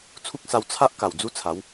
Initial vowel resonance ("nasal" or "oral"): oral